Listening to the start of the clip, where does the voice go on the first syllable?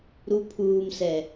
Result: low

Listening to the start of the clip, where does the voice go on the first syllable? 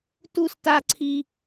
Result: high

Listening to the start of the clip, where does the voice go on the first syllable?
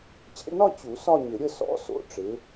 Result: falling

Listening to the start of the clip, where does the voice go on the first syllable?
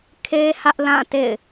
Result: high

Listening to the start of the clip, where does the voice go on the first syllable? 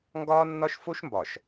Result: high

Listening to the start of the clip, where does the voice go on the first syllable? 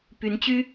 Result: rising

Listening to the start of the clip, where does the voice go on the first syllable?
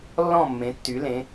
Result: falling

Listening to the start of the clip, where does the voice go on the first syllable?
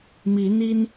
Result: rising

